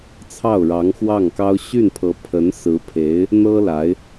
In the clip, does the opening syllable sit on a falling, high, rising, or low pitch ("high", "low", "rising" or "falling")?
falling